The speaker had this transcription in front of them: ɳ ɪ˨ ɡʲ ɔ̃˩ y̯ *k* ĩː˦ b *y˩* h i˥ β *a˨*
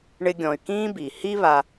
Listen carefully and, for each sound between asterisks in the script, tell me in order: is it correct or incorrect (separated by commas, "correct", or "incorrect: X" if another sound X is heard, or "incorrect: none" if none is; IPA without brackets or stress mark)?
correct, incorrect: i˩, correct